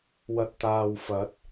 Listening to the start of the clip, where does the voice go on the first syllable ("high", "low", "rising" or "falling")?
low